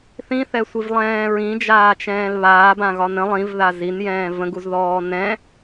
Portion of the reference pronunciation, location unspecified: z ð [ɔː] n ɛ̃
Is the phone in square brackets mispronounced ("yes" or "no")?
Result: no